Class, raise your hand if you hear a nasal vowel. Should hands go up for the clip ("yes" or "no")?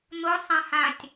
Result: yes